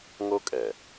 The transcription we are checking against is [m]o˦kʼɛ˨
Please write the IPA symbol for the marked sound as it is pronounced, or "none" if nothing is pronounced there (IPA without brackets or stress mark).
ŋ